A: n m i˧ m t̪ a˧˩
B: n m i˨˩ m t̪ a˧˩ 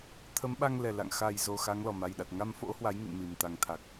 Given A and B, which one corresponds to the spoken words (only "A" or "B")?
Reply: B